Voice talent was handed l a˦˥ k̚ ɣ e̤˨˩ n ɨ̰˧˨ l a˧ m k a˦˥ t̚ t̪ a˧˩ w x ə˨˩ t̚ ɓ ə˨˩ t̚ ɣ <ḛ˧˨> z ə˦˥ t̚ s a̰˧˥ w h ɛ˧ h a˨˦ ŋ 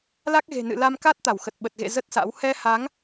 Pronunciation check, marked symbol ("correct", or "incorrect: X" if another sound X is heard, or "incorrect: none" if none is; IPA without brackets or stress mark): correct